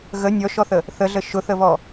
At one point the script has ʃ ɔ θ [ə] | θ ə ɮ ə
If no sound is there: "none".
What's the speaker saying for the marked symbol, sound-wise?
ə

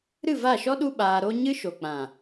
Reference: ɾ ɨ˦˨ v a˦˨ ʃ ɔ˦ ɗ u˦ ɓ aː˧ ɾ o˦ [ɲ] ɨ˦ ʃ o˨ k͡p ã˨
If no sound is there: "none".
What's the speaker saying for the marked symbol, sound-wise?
ɲ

